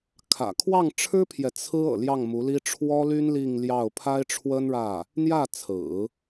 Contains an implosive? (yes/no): no